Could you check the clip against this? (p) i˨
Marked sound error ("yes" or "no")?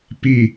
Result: no